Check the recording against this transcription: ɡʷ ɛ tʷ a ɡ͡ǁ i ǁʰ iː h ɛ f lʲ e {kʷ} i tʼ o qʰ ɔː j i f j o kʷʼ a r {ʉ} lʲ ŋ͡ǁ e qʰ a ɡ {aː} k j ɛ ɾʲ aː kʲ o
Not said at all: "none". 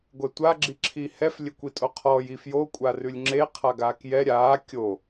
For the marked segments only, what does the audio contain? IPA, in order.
kʷ, ʉ, aː

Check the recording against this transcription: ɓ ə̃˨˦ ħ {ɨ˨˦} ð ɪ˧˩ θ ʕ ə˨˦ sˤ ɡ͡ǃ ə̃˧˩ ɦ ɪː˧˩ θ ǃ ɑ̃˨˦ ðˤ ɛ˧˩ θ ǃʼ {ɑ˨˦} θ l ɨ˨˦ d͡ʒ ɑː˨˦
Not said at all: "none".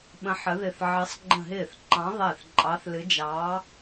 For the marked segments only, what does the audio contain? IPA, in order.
ə˨˦, ɑ˨˦

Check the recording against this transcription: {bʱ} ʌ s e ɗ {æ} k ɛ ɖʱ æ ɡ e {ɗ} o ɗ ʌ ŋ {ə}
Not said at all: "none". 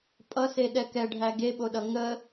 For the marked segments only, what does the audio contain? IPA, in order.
pʼ, ɛ, ɓ, ə

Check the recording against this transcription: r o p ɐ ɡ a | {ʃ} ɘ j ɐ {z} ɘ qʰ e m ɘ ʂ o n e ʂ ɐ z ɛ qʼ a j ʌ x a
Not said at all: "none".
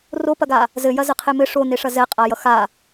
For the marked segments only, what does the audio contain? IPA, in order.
z, z

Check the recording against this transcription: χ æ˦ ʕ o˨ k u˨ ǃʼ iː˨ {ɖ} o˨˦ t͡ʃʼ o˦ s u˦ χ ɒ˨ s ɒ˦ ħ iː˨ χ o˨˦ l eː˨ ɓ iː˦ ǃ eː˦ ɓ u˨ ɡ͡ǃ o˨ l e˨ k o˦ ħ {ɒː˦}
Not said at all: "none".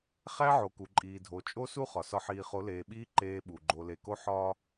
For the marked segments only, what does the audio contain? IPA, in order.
dʱ, ɒː˦

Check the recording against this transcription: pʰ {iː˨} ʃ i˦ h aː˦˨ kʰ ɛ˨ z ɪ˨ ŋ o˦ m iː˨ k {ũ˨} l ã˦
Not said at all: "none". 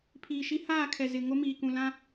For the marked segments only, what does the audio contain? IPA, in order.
iː˨, ũ˨

